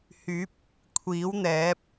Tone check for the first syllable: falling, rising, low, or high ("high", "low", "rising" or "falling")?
rising